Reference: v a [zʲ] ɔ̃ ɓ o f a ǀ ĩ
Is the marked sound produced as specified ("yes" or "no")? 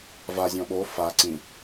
yes